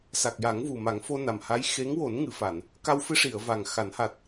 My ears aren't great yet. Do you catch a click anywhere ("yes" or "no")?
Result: no